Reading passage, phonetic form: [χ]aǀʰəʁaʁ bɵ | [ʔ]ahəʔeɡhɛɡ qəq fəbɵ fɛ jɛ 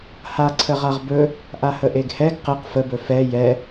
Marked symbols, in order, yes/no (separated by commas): no, yes